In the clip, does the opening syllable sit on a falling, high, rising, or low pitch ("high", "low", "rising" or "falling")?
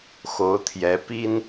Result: rising